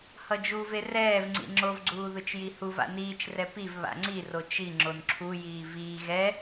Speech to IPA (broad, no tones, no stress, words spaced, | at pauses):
hʌd͡ʒuve rɛːvŋ͡ǀḭ ŋ͡ǁovɡ͡ǀuː ðɯt͡ʃjihuva̰ niːt͡ʃrɛ piv βa̰ŋ͡ǀiro t͡ʃi ŋ͡ǁonǁʰujiː viː ɣɛ